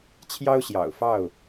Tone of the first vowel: high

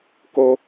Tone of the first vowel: high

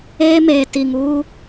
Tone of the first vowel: high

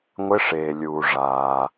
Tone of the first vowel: rising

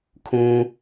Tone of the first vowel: high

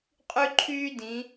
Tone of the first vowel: high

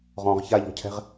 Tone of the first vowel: low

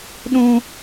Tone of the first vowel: high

